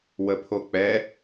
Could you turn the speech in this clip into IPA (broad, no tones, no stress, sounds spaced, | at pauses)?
w ə pʰ o k͡p ɛ